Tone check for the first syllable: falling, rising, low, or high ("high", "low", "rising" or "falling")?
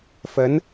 rising